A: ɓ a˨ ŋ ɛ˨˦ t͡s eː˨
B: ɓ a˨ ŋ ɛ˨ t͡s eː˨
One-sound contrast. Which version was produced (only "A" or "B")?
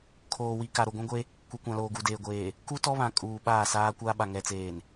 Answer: B